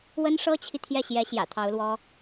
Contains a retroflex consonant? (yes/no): yes